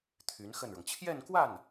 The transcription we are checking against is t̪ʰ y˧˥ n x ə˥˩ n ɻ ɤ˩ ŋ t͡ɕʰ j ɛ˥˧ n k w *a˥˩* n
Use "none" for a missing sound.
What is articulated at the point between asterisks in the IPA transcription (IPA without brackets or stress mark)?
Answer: a˥˩